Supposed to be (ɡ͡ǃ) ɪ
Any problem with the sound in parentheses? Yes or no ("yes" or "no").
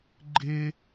no